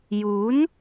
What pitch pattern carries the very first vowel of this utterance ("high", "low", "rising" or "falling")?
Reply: rising